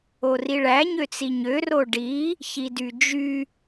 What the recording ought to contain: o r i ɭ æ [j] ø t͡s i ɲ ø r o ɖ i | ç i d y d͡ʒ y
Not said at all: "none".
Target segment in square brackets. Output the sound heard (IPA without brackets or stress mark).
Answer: ɲ